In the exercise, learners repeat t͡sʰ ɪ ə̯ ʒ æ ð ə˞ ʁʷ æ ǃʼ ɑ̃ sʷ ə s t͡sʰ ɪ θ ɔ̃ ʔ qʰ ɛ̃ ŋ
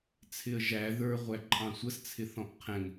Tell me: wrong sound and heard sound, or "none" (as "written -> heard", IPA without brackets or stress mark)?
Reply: none